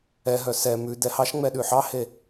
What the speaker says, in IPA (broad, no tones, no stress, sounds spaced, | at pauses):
ɛ ɦ œ s ɛ m ʉ d ɛ h ɑ ʃ ŋ͡m ɛ ɗ ʉ ħ ɑ h e